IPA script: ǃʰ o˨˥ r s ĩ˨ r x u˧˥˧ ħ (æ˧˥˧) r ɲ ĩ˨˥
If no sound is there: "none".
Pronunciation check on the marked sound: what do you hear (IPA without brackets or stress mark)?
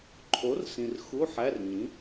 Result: æ˧˥˧